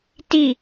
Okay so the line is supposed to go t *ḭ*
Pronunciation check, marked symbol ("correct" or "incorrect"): incorrect